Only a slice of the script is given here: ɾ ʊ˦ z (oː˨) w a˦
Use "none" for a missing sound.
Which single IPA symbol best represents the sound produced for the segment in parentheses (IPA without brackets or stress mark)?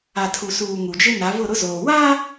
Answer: oː˨